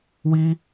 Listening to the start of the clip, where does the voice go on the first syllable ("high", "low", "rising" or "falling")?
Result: high